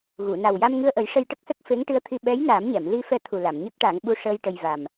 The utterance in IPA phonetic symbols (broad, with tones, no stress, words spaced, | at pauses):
ɣu˨˩˨na˨˩w ja˧mŋɨ˧ə̯ʔə˨˩˦j ʂə˧jʈə˦˥k̚sə˦˥k̚ fe˧˥ŋʈɨ˧˥ə̯t̪ʰi˧ ɓɛ˧˥j naː˨˩˦mɲɛ˨˩˨m li˧ fɛ˧t̪ʰu˨˩ la˨˩˨mɲə˦˥k̚ʈa˨˩˦ŋ ɓu˧ʂəː˧j ʈə˧jva˨˩m